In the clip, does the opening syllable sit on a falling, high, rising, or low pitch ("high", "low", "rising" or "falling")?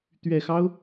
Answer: low